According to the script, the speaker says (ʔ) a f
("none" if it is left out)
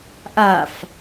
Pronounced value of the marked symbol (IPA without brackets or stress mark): ʔ